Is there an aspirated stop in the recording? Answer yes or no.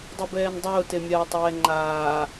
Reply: no